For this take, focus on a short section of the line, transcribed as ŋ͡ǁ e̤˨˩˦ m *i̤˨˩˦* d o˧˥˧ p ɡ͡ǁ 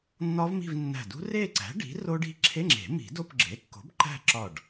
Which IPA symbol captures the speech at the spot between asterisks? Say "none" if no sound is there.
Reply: i̤˨˩˦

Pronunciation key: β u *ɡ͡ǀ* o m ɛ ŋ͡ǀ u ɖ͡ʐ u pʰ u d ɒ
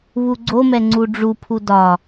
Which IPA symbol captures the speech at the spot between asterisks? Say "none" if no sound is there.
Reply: ɡ͡ǀ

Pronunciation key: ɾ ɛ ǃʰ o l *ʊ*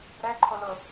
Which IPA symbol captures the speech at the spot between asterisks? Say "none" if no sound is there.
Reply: ʊ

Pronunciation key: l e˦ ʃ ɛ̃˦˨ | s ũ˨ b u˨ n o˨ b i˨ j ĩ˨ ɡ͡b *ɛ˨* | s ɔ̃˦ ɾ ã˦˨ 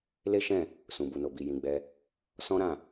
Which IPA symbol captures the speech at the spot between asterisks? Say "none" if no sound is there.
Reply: ɛ˧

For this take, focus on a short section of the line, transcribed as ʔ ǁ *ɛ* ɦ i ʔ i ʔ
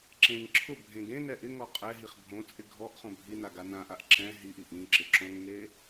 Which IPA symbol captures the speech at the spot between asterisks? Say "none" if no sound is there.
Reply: ɛ̃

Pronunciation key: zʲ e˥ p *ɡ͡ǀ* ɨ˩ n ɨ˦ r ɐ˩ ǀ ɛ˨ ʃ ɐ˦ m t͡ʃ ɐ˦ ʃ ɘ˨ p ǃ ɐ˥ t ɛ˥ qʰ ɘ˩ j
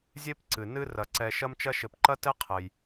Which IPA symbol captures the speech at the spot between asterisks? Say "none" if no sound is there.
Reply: ǀ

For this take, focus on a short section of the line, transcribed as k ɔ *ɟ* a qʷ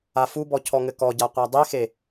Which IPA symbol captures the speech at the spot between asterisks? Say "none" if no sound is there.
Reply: ɟ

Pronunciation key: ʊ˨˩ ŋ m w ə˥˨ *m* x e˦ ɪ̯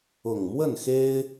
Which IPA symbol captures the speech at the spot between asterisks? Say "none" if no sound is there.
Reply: n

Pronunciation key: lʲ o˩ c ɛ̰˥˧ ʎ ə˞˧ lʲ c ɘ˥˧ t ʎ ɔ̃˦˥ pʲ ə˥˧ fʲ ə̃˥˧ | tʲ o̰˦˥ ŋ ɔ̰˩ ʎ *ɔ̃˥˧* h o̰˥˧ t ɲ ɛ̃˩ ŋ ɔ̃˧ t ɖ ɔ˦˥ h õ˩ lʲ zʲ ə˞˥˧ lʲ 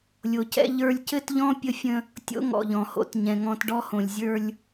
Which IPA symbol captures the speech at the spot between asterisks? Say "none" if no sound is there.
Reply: ɔ̃˩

